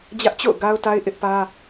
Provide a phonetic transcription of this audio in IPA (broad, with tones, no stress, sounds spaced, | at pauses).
d͡ʑ ä˦ ʔ t͡ɕ o̰˦˨ ʊ̯ ɡ a˦ ʊ̯ t a˦ ɪ̯ ʔ ɪ˦ ʔ p ä˦